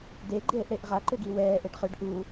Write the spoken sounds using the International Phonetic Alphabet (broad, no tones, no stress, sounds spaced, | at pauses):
d e ɡ͡ǃ eː ʔ ɽ e ʔ ʁ a ǃ ʏ ɡ i w ɛː ʔ e ɖ χ ʏ ɖ ʔ u